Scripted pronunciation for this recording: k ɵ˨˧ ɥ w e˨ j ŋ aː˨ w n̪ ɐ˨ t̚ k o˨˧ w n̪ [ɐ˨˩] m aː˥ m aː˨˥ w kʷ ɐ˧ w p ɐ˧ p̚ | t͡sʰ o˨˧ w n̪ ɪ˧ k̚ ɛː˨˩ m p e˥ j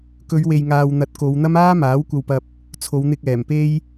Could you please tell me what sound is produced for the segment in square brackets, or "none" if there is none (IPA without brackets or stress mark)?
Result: ɐ˥